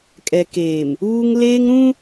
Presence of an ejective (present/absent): present